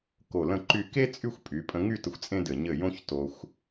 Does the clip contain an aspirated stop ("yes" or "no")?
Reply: no